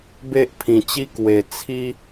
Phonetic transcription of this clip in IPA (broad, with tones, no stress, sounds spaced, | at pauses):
b e˦ ʔ pʰ ĩ˨˩ t͡ɕ i˦ k w e˨˩ t͡sʰ i˦